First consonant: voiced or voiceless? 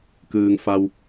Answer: voiceless